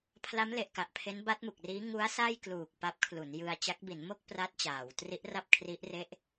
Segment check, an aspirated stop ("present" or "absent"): present